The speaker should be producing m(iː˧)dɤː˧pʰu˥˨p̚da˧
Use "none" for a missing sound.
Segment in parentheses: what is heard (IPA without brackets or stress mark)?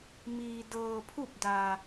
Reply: iː˧